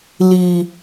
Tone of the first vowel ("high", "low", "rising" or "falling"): low